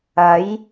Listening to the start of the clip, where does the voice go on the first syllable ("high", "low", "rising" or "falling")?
rising